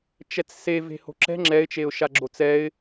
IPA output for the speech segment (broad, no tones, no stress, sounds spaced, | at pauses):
t͡ʃ ɛ t͡s s e v e̤ h o̤ ǁ ɛ̤ ŋ͡ǁ ɛ ɪ̯ t͡ʃ e ʊ̯ ʃ a ɡ͡ǁ o t͡s ɛ ɪ̯